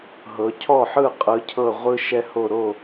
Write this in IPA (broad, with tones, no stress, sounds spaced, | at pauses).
ɦ ɤ˩˧ cʰ ɔ˥˩ ħ ɯ˥˩ qʼ ɯ˩˧ cʰ ɤ˧˩ ʁʷ ɯ˦ ʃ ɛ˦ h o˧˩ ɾ o˥˩